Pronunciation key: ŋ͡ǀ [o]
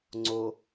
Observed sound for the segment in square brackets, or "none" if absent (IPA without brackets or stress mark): o